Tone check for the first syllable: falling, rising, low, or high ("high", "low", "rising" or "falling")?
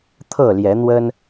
falling